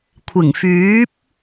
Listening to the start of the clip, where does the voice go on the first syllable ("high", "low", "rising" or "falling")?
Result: low